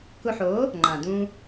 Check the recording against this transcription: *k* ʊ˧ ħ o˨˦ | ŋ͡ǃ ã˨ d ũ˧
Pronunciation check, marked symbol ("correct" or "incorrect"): correct